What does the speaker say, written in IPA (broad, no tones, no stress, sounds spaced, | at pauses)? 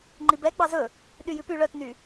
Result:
ŋ͡ǃ i b ɛ ɡ͡b ɑ z ɵ | ɗ y j ʉ p y ɭ œ t n y